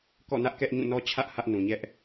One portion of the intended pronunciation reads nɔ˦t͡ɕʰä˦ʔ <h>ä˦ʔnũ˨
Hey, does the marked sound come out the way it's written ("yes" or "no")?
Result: yes